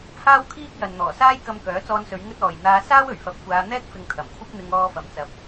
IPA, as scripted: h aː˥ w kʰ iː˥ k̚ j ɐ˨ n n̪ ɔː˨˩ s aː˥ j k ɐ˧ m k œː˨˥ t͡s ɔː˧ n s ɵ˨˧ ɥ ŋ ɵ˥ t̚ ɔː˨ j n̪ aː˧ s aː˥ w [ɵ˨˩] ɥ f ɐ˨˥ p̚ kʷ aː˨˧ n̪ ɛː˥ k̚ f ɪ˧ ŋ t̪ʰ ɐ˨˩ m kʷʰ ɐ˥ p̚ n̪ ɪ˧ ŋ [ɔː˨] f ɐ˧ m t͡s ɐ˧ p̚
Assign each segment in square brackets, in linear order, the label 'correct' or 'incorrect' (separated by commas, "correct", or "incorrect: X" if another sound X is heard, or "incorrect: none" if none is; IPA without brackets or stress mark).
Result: correct, incorrect: ɔː˧